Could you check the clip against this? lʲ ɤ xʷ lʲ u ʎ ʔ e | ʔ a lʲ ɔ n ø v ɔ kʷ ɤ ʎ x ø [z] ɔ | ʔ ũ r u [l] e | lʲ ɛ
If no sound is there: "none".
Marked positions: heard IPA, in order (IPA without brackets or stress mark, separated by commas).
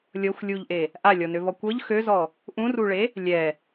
z, ɭ